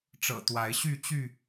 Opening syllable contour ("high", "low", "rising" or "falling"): low